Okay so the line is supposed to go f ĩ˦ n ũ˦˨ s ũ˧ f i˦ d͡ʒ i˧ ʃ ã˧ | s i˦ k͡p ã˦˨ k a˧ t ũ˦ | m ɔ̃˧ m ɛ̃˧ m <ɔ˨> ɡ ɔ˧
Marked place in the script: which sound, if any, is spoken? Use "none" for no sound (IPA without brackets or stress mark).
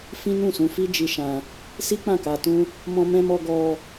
ɔ˧